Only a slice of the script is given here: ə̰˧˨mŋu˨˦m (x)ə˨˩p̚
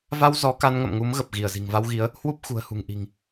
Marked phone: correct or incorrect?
incorrect